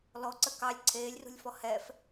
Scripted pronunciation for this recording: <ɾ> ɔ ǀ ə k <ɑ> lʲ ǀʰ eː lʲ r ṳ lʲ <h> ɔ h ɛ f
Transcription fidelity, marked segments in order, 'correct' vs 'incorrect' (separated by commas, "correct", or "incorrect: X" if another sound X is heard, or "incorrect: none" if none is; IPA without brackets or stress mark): incorrect: l, correct, incorrect: f